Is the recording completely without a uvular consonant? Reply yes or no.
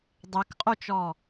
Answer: no